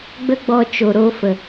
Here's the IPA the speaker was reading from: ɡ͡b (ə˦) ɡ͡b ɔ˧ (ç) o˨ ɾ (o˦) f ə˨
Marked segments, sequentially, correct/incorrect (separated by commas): correct, incorrect, correct